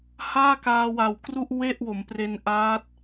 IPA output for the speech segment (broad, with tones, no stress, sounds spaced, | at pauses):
h aː˥˩ k aː˧ w a˨˩ w k r u˥˩ ʔ w e˥˩ ʔ w o˩˦ m p r e˧ n ʔ aː˦˥ t̚